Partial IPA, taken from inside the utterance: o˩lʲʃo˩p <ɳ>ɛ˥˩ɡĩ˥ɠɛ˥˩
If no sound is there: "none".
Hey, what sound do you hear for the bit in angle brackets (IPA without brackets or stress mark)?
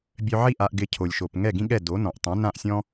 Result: ŋ